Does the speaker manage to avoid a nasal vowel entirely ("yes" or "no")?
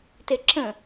no